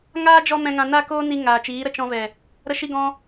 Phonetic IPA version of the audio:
ŋ aː˦ d͡ʒ ɔ˦ m ɛ̃˧ ŋ ã˧ n a˦ k oː˦ n i˧ ŋ aː˨ t͡ʃ iː˨˦ ɾ ə˧ t͡ʃ ɔ̃˧ v ɛ˨ | ɾ ə˧ ʃ i˧ ɡ ɔ̃˧

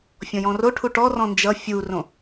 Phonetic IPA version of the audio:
fʲ ɔ̃ j ɔ̃ r o ʈʰ u ʈ ɔ r ɔ̃ n d͡ʒ ʌ fʲ u r õ

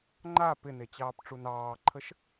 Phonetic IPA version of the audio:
ŋ͡ǃ a p ɪ n e t͡ɕ ɑː p ʈ͡ʂ u n ɑː ǃʰ ə ʃ

